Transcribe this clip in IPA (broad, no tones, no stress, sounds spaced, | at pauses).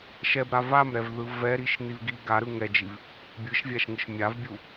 ʃ ɛ b ɾ a v a m ɾ ɛ v ð ɯ v ɛ ɾ i ʃ n̪ i v ɡ i ɡ a ɾ ɯ ŋ ɛ d͡ʒ i v | bʲ ɯ ʃ vʲ a ʃ ŋ ɯ ʃ mʲ a v bʲ u